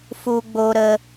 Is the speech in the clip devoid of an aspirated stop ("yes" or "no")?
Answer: yes